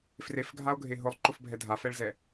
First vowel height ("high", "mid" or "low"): mid